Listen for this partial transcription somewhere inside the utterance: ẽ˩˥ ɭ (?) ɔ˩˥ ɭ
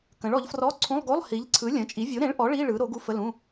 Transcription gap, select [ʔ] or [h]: ʔ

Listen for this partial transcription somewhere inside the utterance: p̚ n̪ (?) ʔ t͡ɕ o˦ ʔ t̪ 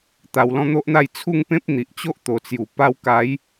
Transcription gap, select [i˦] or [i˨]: i˨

